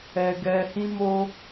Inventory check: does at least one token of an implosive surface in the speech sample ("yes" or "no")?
no